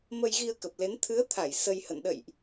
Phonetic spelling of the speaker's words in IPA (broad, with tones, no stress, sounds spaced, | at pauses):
m ə˧ j ɣ i˧ ə̯ k ə˨˩ p̚ l e˨˦ n t̪ʰ ɨ˨˦ ə̯ t̪ʰ a˧˩ j s ə˧ j h ə̰˧˨ n ɗ ə̰˧˨ j ʔ